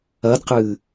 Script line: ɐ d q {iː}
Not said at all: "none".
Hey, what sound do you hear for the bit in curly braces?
ɨː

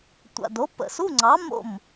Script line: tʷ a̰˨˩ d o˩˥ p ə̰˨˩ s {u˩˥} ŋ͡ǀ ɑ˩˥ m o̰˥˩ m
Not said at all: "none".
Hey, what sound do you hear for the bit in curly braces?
u˧˥˧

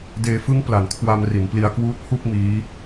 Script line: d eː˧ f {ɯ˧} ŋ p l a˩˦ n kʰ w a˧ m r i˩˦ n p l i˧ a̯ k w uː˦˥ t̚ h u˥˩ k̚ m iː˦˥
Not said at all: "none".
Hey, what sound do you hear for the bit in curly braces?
ɯ˦˥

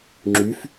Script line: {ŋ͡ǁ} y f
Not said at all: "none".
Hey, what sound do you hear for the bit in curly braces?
ŋ͡ǁ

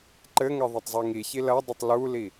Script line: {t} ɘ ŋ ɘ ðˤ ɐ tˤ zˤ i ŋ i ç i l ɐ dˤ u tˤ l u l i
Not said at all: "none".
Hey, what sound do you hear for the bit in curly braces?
ǃ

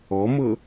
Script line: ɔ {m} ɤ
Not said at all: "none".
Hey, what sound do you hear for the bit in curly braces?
m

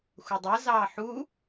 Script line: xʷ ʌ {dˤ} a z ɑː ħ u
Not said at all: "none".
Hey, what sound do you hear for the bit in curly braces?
dˤ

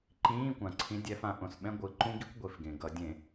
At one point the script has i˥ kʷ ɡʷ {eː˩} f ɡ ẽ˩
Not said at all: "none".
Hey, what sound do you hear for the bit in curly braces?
e˩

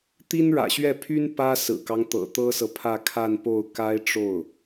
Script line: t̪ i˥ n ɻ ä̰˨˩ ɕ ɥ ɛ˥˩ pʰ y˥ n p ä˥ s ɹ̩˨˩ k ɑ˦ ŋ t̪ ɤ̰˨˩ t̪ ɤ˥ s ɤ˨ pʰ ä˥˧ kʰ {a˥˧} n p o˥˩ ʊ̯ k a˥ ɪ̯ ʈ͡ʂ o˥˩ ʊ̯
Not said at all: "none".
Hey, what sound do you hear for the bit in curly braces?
a˥˧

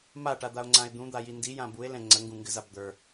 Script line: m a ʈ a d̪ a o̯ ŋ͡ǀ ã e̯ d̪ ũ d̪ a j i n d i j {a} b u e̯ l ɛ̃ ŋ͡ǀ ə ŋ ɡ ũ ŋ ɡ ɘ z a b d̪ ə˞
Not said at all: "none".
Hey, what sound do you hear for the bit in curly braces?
ã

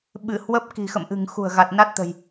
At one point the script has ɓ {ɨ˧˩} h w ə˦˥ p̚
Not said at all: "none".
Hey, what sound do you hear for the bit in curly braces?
ɨ˧˩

